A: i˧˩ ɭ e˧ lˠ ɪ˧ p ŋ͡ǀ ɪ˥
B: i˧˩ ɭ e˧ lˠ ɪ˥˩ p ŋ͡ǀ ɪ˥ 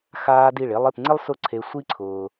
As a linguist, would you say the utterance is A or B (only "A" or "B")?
B